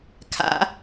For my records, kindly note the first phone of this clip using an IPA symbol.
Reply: kʰ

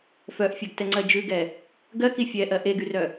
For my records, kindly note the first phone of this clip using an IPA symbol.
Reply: f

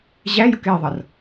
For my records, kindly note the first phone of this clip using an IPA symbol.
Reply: ʑ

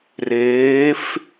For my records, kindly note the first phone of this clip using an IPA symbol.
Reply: r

